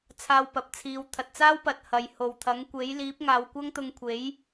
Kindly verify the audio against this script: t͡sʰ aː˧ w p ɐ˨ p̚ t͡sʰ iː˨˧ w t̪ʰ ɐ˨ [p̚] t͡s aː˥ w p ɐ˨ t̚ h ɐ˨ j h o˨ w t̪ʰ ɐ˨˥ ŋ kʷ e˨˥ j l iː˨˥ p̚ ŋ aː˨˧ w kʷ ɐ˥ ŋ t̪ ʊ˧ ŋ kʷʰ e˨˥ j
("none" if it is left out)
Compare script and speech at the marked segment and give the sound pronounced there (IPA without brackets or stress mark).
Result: t̚